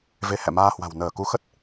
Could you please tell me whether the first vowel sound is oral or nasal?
oral